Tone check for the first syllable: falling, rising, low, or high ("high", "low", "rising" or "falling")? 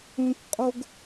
high